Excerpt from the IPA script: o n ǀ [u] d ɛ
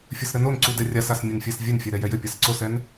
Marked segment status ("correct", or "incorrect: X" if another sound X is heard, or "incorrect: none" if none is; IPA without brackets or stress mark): correct